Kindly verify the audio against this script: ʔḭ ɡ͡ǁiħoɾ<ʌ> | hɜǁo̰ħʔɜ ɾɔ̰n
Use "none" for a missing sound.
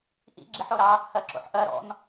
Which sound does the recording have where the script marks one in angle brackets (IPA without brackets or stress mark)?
ɑ